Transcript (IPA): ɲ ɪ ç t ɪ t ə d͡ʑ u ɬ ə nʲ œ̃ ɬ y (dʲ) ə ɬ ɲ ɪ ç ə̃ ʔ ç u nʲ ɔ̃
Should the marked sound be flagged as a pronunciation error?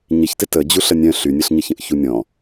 yes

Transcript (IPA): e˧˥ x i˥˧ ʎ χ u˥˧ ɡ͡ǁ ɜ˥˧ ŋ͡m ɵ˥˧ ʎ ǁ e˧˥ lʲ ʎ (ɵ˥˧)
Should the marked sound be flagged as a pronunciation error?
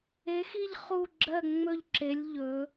yes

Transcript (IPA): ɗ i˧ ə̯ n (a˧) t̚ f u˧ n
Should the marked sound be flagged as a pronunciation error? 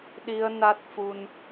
yes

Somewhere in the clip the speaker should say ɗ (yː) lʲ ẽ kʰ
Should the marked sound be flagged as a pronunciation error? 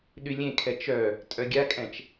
yes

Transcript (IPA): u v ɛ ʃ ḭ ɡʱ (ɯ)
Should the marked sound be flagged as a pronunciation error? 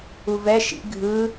no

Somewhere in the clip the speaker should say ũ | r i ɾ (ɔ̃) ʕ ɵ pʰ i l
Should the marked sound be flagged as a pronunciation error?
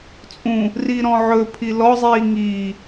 no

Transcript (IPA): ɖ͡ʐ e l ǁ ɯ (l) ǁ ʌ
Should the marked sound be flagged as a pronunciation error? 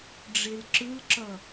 no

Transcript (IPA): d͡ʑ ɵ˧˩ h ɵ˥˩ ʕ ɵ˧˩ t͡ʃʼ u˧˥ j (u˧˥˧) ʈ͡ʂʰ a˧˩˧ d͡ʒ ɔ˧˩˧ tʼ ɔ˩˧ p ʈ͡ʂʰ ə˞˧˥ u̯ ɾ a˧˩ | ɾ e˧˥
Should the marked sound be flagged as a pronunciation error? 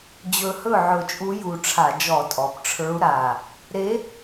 yes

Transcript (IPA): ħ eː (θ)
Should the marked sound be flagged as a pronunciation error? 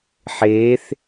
no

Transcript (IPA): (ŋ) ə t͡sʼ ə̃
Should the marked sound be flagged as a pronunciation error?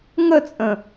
no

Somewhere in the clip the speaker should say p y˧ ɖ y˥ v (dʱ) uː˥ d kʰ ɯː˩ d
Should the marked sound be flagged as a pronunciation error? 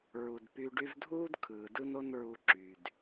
no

